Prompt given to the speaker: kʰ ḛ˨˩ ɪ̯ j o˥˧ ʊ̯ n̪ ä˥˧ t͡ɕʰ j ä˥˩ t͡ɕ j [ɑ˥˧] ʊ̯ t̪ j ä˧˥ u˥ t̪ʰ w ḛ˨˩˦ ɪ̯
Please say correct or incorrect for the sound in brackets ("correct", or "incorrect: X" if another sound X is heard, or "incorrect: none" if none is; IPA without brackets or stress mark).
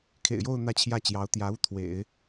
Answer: incorrect: ɑ˧˥